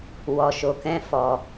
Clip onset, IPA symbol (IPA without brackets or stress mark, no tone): w